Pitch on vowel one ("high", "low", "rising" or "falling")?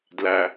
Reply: low